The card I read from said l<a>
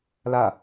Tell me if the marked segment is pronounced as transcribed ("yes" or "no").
yes